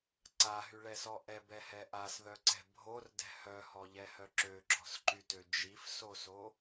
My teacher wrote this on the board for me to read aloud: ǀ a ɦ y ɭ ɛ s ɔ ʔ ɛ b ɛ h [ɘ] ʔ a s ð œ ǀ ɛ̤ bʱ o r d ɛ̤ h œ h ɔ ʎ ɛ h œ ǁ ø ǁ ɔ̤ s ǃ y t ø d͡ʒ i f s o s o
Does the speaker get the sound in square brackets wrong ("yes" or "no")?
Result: yes